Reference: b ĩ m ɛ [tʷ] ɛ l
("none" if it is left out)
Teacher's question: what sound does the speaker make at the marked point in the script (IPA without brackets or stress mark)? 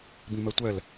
tʷ